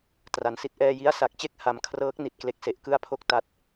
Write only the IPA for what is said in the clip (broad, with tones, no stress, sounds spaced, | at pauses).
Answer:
t r a˨˩ n s i˥˩ t̚ ʔ ɛː˧ j i˦˥ a̯ s a˨˩ k̚ t͡ɕ e˥˩ k̚ h a˧ m kʰ r ɤː˦˥ k̚ n i˨˩ t̚ k l e˦˥ k̚ s e˨˩ ʔ k ɯ˥˩ a̯ pʰ o˥˩ k̚ t a˦˥ t̚